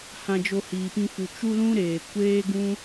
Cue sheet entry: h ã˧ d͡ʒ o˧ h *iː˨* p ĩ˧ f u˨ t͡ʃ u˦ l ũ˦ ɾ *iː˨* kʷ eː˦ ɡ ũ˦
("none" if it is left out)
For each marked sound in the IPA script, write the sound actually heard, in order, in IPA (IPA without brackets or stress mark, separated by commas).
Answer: iː˨, eː˨